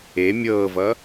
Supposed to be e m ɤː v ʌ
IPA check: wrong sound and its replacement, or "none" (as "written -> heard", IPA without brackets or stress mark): m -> mʲ